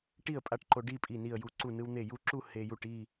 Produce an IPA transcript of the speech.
ʈ i˥˨ ə̯ pʼ a˥˨ ʈ ǃ o˧ ɖ i˥˨ pʼ i˧˩ n i˧˩ ə̯ j u˧˩ ǀ u˧˩ n ɯ˧ w n̪ e˧˩ j u˥˨ ǁ u˥˨ h e˧ j u˥˨ ʈ i˥˨

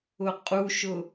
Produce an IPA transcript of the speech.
ʊ qʼ u ʃ ʊ

